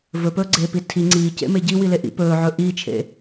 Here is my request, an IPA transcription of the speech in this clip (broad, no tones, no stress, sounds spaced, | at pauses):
v ɵ p ɵː ɡ͡ǀ eː p i tʰ i ŋ͡ǀ iː c ḛ m e ɟ i w i l e ʔ ḭ p ɵː ʕ ɵ ʔ i t͡ʃʰ ḛ